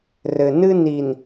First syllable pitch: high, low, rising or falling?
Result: low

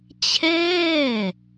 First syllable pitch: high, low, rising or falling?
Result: falling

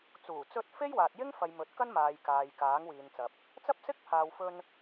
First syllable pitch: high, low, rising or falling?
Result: low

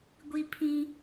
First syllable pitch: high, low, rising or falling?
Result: high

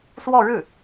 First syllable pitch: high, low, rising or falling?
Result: falling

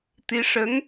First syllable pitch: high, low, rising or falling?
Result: rising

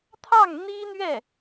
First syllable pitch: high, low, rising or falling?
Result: falling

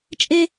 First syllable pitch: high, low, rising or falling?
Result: high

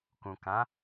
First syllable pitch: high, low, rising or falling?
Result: low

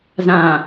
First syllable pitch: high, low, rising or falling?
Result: low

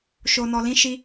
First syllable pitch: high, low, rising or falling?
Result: low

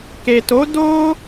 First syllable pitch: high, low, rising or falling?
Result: low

